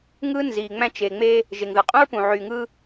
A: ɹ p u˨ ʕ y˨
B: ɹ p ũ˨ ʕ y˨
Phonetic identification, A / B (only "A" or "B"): B